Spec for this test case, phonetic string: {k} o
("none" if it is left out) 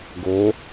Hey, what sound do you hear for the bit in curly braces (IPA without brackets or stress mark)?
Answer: ɡ